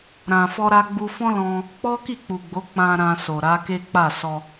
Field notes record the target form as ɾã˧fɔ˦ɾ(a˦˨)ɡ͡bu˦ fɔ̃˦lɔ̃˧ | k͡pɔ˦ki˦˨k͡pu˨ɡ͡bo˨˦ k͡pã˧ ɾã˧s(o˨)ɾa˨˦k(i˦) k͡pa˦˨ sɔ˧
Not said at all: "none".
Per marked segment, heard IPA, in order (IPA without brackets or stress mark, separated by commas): a˦, o˨, e˦